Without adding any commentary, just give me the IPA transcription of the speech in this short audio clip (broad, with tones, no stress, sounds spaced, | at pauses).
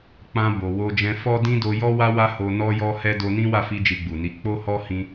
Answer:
k͡p ã˧ b o˨ w o˧ d͡ʒ ɛ̃˧ f ɔ˦ d ĩ˦ d o˧ j ɔ˦ w a˦ w a˦ h o˧ n ɔ˦ j ɔ˦ h ɛ˦ d o˧ n ĩ˦ w a˦˨ f i˧ d͡ʒ i˧ ɡ͡b u˨ n i˨˦ k͡p o˦ h ɔ˦ h ĩ˧